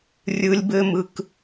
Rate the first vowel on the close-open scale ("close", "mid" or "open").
close